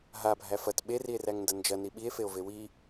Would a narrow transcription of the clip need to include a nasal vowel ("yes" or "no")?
no